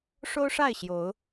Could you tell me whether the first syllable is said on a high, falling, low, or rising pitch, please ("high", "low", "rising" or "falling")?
high